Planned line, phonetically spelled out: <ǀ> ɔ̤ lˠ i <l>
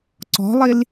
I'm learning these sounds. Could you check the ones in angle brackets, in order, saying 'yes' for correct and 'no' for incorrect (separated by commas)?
yes, yes